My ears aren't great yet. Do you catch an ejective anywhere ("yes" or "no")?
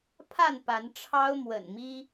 no